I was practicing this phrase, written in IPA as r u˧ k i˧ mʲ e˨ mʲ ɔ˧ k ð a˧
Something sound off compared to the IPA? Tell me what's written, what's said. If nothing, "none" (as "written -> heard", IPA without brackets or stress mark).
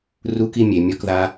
none